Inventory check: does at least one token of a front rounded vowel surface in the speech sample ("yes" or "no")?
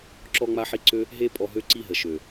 yes